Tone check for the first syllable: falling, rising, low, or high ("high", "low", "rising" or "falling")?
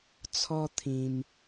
high